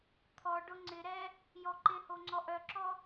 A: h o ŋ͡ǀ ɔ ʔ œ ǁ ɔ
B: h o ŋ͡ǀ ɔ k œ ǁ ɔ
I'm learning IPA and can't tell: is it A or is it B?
A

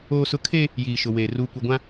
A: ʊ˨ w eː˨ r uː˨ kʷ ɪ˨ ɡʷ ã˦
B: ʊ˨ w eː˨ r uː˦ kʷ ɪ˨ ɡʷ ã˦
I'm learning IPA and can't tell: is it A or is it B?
A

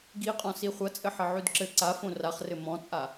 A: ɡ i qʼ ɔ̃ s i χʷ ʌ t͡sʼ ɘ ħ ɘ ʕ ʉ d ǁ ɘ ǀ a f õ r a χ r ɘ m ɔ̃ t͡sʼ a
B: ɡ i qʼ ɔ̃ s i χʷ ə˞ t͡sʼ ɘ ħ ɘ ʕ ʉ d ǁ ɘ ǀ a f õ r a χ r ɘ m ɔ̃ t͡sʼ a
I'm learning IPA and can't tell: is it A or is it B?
A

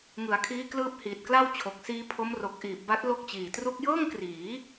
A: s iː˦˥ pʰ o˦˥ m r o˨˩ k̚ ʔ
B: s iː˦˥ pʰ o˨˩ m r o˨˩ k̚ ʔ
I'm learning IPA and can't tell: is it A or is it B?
A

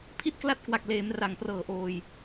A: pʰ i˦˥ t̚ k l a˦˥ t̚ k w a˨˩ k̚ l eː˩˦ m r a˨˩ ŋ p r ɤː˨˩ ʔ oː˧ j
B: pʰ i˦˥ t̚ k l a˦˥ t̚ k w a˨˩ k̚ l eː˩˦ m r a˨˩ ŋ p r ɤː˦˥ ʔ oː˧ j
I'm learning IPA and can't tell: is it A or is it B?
A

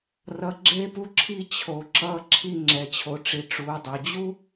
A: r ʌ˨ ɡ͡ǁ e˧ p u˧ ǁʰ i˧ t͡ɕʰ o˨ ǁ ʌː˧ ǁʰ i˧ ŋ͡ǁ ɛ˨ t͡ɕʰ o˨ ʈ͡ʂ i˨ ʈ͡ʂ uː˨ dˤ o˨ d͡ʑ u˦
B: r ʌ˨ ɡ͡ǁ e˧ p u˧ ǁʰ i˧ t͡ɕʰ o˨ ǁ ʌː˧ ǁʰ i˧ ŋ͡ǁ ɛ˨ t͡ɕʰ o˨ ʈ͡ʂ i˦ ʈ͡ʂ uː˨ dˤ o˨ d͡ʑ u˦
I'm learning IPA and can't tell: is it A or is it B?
A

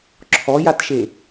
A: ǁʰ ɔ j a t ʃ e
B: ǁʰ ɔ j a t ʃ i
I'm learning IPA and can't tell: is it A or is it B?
A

